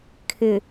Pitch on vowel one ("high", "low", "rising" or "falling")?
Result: low